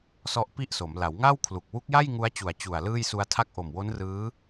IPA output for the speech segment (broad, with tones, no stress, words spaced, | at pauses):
sɔ˦˥ʔpi˥˩ʔso˩˦m la˩˦wŋa˥˩wkʰlu˨˩k̚ wu˦˥k̚ja˥˩j ŋu˦˥a̯t͡ɕu˨˩a̯ t͡ɕu˨˩a̯ lɯː˥˩jsu˧a̯tʰa˥˩k̚ ʔo˨˩mwo˦˥nrɯː˦˥